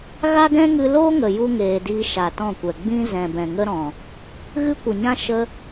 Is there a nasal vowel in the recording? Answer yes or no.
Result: yes